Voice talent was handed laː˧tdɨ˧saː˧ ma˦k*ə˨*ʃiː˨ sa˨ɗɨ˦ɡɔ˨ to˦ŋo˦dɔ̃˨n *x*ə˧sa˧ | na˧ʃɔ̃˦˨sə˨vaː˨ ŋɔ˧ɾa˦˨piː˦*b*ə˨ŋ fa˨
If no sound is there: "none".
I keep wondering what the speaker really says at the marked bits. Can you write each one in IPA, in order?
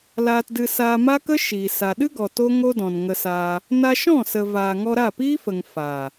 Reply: ə˦, ŋ, f

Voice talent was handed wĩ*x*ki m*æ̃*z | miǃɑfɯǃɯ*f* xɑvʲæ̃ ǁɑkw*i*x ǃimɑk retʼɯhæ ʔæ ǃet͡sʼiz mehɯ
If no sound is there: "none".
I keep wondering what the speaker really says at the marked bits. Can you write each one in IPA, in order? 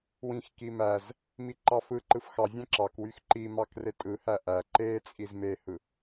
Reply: x, æ, f, y

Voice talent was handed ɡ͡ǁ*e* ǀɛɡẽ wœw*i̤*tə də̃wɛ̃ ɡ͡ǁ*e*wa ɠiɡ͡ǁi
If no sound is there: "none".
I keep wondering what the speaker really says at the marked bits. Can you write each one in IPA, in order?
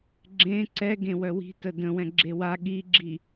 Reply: ẽ, i̤, e

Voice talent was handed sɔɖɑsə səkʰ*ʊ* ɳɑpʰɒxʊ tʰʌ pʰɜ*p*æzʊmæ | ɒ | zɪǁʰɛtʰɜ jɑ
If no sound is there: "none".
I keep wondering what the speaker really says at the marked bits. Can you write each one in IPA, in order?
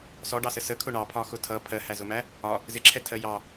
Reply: ʊ, h

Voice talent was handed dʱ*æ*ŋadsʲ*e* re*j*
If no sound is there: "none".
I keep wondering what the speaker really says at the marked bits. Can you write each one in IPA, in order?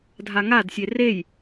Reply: a, e, j

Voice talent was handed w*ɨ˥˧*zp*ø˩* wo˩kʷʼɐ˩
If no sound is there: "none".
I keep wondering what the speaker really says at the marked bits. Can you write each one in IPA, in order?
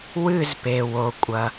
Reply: ɨ˥˧, e˩

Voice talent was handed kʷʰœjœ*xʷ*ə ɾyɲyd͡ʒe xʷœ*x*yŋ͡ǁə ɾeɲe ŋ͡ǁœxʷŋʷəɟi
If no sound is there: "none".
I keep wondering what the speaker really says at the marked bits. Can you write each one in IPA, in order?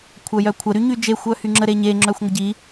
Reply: kʷʰ, h

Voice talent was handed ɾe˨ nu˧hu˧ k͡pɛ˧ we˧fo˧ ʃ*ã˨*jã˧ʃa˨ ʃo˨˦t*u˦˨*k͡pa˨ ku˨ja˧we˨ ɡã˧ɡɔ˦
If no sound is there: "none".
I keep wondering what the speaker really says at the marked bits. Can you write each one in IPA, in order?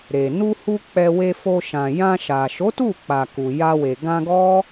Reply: ã˨, u˦˨

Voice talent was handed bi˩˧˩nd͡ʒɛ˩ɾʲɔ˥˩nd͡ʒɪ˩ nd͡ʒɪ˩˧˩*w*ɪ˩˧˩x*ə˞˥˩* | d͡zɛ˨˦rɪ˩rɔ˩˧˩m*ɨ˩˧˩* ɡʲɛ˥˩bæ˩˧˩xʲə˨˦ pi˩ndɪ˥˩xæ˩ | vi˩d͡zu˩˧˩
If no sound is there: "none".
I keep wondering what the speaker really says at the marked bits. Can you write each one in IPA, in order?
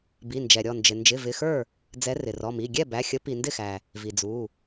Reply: v, ə˞˥˩, i˩˧˩

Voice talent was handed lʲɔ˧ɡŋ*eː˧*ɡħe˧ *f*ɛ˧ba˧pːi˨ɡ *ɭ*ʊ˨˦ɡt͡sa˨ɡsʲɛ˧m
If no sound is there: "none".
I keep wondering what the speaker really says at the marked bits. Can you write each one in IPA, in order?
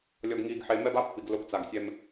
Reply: iː˧, m, l

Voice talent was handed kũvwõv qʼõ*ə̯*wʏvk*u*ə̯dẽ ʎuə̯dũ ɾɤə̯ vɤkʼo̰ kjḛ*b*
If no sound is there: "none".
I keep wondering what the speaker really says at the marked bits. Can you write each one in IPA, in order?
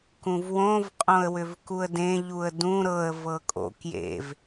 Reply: ə̯, u, v

